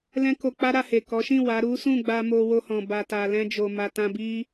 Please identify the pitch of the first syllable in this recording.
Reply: high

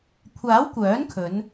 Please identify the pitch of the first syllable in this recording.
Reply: rising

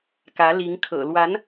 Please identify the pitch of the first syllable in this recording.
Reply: rising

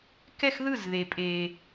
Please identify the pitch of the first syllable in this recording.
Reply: falling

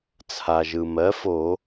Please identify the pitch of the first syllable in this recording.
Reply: low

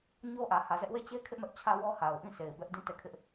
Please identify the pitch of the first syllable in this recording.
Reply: high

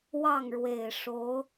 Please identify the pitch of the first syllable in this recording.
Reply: falling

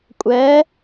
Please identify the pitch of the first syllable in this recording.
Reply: rising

